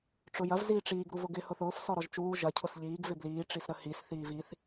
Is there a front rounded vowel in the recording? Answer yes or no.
no